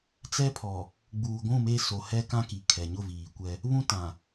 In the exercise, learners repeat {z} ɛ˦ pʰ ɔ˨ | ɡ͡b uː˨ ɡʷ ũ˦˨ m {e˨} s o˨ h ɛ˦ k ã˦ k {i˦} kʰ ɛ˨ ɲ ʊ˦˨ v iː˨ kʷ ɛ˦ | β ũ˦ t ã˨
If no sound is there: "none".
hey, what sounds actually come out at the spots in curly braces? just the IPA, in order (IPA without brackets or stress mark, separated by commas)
t͡s, e˦, i˨